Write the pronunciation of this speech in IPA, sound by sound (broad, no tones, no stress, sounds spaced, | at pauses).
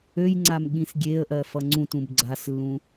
ø j ŋ͡ǀ a m ɠ ĩ s ɡʲ e ə̯ ʔ ɜ f ʌ ŋ͡ǀ ũ t ũ b ɡ͡ǀ a s lː ũ